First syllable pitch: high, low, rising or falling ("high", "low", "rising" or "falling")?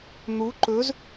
rising